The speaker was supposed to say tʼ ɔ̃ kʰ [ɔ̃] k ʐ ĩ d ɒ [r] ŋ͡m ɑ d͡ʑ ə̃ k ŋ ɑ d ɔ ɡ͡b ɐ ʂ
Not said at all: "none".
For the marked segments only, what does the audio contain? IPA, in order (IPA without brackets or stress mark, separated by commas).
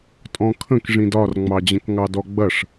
ə̃, r